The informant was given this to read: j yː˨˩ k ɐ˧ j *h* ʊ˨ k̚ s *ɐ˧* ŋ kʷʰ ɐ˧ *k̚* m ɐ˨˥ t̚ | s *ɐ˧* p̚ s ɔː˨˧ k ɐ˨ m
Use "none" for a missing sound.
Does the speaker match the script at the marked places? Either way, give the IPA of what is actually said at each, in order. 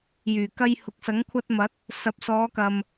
h, ɐ˨˥, t̚, ɐ˨˥

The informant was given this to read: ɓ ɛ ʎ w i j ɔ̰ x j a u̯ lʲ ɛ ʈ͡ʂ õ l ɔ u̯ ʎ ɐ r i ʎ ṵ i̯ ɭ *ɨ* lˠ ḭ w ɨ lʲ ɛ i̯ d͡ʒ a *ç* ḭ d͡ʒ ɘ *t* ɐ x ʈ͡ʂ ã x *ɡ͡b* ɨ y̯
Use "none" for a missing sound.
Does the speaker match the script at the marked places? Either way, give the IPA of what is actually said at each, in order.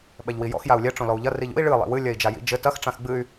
ɨ, j, t, ɡ͡b

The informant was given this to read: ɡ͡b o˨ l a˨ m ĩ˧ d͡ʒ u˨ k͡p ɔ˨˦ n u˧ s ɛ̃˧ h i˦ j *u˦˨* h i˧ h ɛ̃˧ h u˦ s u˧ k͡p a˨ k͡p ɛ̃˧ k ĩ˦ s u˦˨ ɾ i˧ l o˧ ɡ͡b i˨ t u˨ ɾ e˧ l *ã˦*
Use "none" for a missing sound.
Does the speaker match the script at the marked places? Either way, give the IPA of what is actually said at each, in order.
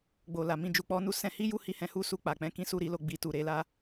u˦˨, a˦

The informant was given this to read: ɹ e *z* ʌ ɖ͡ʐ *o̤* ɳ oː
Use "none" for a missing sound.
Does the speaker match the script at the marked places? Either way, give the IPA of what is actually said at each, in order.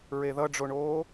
ð, o

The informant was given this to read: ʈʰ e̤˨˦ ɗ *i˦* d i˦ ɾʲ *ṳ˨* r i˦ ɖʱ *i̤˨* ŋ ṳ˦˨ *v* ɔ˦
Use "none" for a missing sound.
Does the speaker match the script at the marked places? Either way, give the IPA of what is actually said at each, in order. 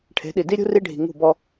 i˨, ṳ˦, i̤˨, b

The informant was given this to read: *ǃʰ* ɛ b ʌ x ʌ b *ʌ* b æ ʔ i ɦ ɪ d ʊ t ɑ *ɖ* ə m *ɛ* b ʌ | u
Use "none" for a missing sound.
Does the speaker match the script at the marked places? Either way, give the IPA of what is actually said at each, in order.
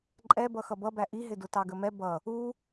ǃʼ, ʌ, ɡ, ɛ

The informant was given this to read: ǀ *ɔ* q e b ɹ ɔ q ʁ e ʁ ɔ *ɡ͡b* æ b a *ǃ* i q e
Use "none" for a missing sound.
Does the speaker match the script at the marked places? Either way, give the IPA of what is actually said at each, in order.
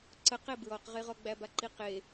ə, ɡ͡b, ǃ

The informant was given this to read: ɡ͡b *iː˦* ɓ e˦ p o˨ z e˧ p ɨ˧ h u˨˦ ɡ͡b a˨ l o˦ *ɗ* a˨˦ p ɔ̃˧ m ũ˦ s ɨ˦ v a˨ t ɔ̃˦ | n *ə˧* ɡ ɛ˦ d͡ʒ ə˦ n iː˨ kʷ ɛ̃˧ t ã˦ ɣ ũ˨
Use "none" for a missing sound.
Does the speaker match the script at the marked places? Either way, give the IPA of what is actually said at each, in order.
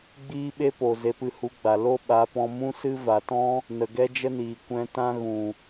iː˦, ɓ, ə˨

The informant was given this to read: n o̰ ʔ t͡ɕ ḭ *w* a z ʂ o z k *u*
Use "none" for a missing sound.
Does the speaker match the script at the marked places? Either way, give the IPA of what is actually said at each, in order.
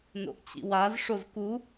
w, u

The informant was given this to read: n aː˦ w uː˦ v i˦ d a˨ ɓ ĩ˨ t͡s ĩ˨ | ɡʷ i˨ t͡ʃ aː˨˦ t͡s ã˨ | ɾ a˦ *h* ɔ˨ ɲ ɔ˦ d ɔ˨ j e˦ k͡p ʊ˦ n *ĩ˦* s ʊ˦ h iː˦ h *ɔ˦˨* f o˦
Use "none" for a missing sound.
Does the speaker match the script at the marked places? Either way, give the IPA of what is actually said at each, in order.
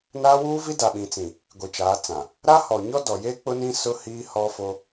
h, ĩ˦, ɔ˦

